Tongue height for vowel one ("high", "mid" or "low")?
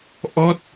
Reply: mid